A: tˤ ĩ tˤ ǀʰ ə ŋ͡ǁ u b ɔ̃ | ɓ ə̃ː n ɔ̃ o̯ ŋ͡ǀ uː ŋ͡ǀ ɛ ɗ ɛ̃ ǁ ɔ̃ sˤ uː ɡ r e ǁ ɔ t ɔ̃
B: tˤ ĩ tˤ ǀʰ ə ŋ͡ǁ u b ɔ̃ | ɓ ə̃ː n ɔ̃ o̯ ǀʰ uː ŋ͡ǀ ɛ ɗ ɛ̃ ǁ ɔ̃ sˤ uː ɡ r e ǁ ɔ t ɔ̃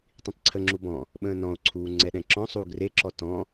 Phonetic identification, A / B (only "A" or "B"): B